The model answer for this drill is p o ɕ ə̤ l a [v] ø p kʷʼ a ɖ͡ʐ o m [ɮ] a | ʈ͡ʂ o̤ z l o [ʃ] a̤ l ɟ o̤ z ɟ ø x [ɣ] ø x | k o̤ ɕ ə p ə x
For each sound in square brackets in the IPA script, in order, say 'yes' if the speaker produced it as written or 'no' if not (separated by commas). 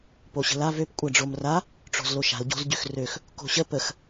yes, no, yes, no